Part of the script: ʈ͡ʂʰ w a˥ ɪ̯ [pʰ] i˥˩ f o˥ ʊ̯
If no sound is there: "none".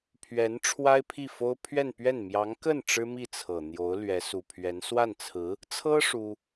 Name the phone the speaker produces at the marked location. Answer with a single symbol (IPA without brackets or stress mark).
pʰ